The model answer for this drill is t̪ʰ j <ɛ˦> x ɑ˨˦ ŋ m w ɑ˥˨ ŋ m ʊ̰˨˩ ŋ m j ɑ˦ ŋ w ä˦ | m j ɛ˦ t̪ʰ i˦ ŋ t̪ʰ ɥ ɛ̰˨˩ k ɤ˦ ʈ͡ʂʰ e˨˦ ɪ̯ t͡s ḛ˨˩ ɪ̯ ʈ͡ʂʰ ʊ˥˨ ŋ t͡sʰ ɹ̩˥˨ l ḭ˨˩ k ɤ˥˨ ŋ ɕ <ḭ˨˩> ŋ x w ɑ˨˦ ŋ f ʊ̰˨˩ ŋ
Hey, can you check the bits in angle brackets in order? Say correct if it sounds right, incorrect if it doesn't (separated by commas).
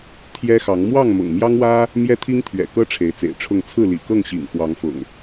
correct, correct